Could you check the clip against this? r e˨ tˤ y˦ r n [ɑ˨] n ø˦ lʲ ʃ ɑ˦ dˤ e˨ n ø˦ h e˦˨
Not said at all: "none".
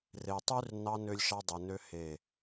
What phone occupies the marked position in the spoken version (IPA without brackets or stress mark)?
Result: ɑ˦